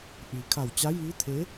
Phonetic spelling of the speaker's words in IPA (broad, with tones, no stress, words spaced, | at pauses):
ʔiː˩ kʰa˧˩wt͡ɕa˧˥ jiː˧˥ t̪ʰe˧˥